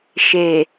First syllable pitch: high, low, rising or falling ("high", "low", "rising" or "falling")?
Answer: low